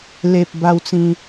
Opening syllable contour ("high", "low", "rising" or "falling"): low